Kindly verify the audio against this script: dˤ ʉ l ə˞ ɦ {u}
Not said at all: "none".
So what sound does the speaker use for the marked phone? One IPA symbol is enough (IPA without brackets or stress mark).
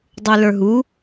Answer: u